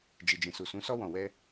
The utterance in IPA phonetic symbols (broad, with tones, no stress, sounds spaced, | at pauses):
d͡ʒ i˨ d͡ʒ ĩ˨ s u˨ s ũ˨˦ s ɔ˧ w ɔ̃˨ w ɛ˧